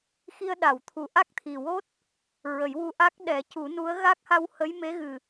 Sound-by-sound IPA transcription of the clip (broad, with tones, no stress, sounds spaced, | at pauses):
x i˧ ə̯ ɗ a˨˩˨ w t̪ʰ u˨˩ ʔ a˦˥ k̚ t̪ʰ i˨˩ w o˦˥ t̚ | ɹ ə˨˩˦ j w u˧ ʔ a˦˥ k̚ ɗ ɛ˨˩˦ c u˨˩˦ n u˧˥ ə̯ ɣ a˦˥ k̚ h a˧ w h ə˧˥ j m e˧˥ ɣ ɨ˨˩